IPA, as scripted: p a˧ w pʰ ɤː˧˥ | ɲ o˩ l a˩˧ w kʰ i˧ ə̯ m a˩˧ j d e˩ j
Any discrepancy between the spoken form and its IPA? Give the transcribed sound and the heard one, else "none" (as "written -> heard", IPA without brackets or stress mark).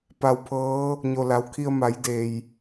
none